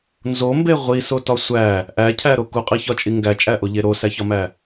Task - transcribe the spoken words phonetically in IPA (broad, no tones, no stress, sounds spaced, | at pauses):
n z o m b e ʁʷ i s o t ɒ sʷ æ | ʔ æ cʰ æ ɾ o k u qʼ i ç ɒ t͡ʃʼ i ŋ ɡ æ t͡ʃʼ æ ʔ o ʎ e ɾ o s æ ç ɒ m æ